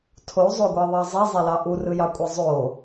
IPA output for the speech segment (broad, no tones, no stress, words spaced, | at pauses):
tʰozˤoɡʷɑðˤɑ zˤezˤelɑ ʔurɯjɑkʷʼe zˤo